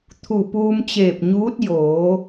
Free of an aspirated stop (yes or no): no